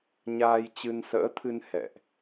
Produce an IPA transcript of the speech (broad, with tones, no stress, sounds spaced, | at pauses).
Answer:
ɲ aː˧ j t͡ɕ ɨ˧ n s ə̰ː˧˥ t̪ʰ ɨ˧ n h ɛ̰˧˨ ʔ